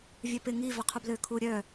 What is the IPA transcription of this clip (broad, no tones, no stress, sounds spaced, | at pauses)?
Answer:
vʲ œ p ɪ ŋ i v œ qʰ u b l ø kʰ u ɾʲ œ